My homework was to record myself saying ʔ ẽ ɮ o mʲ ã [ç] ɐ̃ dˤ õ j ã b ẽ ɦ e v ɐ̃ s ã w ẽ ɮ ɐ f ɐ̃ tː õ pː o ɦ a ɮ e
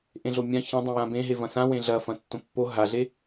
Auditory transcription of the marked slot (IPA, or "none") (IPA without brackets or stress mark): ç